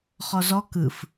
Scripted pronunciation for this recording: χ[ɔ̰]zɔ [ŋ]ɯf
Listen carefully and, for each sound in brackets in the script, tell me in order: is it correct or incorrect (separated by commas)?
incorrect, incorrect